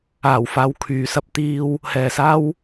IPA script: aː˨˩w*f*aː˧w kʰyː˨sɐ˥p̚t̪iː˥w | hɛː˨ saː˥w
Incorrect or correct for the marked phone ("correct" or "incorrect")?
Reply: correct